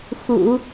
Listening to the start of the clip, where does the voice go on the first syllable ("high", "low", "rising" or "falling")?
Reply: low